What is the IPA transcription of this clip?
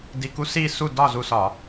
d i˧˩ k u˦ s i˥˨ s u˥˨ d ɒ˥˨ z u˧˩ s ɒ˧˩˧

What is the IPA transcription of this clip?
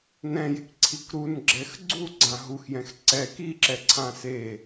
n ɛ̃ j e k ǀʰ i k ɾ u n ɡ͡ǁ ɛ x ɡ͡ǀ u ɡ͡ǀ ã ɦ u x j ɛ̃ x ǀ ɛ k i ǁ ɛ ǀʰ ã s e

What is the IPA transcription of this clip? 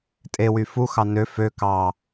tʼ e w y f u x ɑ n ø f ø k ɑ

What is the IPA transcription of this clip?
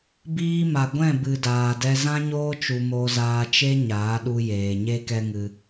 b iː˧ m a˨ ɡʷ ɛ̃˦˨ b ɨ˨ d aː˨ d ɛ˧ z ã˦ ɲ oː˦ t͡ʃ u˧ m o˧ z aː˧ t͡ʃ e˦ ɲ aː˨˦ ɗ u˧ j eː˨ ɲ e˦ k ɛ˦ ŋ ɨ˧

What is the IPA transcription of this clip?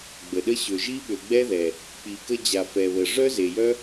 ɡ͡b ə˨ ɗ ə˦ ɕ ø˨ ʒ i˦ ɓ ø˨ ɡ͡b ɛ˦ ð ɛ˨ | k͡p i˨ k ə˧ d͡ʑ a˨ f ɛ˨ β ə˨ ʐ œ˦ z e˨ j œ˦

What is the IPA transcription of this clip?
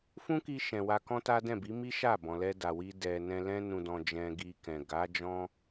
f ũ˦ k i˧ ʃ ɛ̃˨ w a˧ k ɔ̃˦ t a˦ d ɛ̃˦˨ b i˨˦ m i˦ ʃ a˦˨ b ɔ̃˨ l ɛ˧ d a˨ w i˧ d ɛ˨ n ɛ̃˧ l ɛ̃˧ n ũ˨ d ɔ̃˨ d͡ʒ ɛ̃˧ ɡ i˧ k ɛ̃˨ ɡ a˨˦ d͡ʒ ɔ̃˦

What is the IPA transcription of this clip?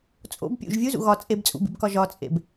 t͡sʼ o̰ b pʲ ṵ ʒ vʲ u z ṵ ɣ ɒ t͡sʼ e b t͡sʼ ṵ b ḭ b k ɒ ʒ ɒ t͡sʼ ḛ b

